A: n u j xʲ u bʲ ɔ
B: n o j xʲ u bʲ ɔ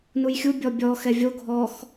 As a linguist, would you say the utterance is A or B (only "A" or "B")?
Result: A